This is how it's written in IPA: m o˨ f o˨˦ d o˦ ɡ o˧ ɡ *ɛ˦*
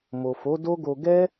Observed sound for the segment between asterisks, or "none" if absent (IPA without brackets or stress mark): ɛ˦